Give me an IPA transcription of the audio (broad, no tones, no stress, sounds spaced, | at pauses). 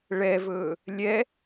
ɭ ɛ v ɵː | lʲ ɛ